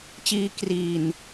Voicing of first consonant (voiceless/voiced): voiceless